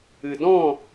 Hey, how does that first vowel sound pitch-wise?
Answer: low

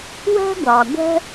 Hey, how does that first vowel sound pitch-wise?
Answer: high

